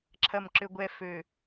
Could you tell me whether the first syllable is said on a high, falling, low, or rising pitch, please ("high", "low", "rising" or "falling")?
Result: low